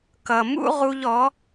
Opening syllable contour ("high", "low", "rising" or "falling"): low